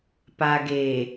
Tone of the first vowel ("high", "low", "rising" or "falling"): low